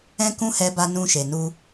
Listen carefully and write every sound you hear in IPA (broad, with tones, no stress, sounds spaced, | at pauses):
ɛ̃˦ k ũ˦ h ɛ˧ b a˧ n ũ˧ ʃ e˨ n u˧